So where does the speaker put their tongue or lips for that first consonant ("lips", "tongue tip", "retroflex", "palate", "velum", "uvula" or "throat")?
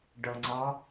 retroflex